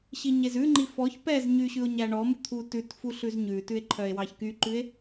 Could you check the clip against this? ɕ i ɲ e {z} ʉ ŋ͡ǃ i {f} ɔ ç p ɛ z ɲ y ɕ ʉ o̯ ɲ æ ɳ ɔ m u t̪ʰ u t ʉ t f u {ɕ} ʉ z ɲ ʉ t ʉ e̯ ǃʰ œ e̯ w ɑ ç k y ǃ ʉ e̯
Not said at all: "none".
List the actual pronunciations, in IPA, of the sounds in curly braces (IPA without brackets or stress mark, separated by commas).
z, f, ɬ